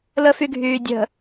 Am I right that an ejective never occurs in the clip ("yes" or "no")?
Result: yes